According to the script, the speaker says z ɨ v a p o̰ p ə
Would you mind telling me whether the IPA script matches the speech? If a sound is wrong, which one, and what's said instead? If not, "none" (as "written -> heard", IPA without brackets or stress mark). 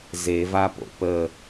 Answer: ɨ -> e